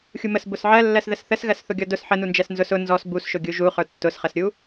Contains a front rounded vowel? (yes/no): no